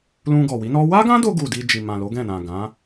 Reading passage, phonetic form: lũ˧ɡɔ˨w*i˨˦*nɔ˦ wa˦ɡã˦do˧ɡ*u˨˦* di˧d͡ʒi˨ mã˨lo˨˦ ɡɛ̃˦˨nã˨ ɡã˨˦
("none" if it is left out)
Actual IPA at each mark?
i˨˦, u˨

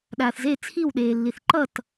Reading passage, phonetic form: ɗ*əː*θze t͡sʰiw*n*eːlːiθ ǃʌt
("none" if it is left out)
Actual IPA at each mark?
aː, ɗ

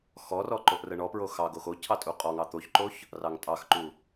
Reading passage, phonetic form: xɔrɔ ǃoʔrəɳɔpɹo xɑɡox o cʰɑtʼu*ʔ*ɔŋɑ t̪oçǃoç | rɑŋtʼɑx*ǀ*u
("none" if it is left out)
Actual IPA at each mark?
qʼ, ǃ

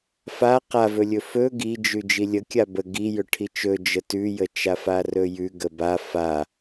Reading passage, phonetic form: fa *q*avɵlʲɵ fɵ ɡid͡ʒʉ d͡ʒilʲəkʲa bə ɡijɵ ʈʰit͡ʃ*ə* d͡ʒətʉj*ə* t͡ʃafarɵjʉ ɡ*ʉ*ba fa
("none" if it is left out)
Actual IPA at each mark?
q, ɵ, ə, ə

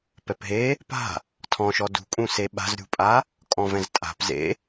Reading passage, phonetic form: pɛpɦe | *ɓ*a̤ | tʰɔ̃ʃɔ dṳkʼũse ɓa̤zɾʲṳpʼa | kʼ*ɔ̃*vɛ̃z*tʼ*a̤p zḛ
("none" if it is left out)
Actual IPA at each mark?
p, ɔ̃, tʼ

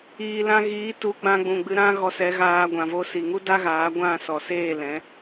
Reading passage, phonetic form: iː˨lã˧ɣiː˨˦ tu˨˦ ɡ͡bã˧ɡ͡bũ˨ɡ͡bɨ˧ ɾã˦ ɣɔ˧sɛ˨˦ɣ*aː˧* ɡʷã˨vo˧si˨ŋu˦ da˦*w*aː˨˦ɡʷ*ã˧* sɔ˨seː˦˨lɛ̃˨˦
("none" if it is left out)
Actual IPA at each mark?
aː˧, ɣ, ã˦˨

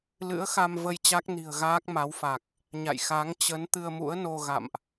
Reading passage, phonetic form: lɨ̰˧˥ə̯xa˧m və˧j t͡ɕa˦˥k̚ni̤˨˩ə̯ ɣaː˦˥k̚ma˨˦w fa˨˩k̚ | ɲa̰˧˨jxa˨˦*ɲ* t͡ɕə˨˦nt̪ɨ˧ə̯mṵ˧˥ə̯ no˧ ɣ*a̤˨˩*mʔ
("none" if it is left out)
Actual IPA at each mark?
ŋ, a̰˧˨

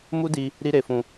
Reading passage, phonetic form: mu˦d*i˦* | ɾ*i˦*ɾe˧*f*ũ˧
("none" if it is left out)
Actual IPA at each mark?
i˧, i˦, f

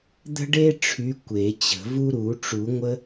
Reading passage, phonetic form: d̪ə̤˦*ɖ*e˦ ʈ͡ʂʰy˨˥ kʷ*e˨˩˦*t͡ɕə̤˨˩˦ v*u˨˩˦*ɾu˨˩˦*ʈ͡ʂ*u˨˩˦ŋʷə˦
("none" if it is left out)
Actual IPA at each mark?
ɖ, e˨˩˦, u˦, ʈ͡ʂ

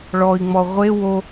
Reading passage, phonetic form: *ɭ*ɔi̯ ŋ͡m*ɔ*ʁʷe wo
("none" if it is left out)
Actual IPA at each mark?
ɭ, ɔ

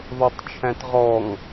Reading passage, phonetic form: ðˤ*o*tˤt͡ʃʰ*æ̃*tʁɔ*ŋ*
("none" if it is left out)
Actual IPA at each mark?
o, æ̃, ŋ

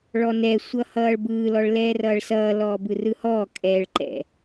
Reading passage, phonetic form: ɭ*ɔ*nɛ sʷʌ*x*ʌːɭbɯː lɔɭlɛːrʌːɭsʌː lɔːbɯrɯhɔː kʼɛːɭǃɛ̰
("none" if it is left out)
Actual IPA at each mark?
ɔ, h

